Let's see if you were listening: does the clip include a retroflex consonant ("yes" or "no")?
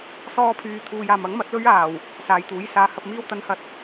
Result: no